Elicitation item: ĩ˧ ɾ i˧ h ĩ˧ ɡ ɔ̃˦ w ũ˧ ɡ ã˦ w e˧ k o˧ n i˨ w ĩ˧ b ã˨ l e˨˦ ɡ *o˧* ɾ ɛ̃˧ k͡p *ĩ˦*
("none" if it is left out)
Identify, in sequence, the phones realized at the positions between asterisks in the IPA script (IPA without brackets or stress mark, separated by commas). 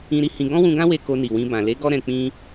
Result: ɔ˧, ĩ˦